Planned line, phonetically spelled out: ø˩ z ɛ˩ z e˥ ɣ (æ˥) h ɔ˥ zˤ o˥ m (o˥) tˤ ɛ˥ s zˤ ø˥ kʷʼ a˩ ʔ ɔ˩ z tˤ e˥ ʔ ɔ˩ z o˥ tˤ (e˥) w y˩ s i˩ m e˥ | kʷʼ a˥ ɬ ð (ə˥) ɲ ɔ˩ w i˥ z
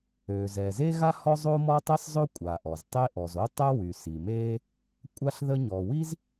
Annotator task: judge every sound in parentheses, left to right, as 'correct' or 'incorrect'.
incorrect: a˥, incorrect: ɔ˥, incorrect: ɛ˥, correct

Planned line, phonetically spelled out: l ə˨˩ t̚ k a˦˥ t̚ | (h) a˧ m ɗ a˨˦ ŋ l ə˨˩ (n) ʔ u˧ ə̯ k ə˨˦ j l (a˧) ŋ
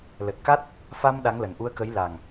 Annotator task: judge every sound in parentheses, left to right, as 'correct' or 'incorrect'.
incorrect: f, correct, incorrect: a˨˩

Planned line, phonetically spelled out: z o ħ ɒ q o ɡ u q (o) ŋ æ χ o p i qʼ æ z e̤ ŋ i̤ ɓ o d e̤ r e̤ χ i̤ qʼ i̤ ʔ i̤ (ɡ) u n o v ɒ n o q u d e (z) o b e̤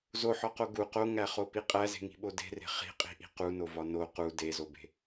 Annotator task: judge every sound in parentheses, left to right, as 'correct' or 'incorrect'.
correct, incorrect: q, correct

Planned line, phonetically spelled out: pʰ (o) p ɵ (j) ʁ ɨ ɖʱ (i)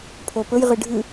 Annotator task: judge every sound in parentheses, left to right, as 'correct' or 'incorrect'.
correct, correct, incorrect: ɨ

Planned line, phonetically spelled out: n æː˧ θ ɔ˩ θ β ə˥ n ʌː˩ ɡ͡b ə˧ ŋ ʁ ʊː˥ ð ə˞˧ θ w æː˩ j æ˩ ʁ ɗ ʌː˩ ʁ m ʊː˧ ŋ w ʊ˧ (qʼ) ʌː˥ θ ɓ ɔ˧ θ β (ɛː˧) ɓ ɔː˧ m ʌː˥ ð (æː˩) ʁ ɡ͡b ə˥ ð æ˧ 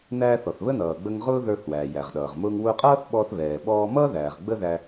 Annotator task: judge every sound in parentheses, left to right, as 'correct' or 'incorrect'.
correct, incorrect: ɛː˩, correct

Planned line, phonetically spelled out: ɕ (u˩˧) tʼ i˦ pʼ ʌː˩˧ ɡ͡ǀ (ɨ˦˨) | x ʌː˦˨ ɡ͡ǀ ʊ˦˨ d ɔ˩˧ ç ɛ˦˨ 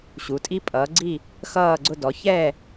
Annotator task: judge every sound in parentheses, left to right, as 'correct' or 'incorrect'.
correct, incorrect: i˦˨

